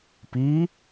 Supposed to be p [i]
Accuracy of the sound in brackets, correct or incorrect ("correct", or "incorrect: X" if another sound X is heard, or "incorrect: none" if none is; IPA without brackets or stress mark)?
correct